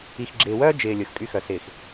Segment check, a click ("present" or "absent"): present